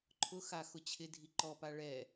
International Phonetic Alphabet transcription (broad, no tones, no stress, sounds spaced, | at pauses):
ǃʰ ʊ x a x ʊ t͡ɕʰ ɪ dʱ i ǃ ɔ p a ɭ ɛ